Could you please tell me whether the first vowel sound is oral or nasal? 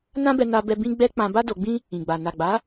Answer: nasal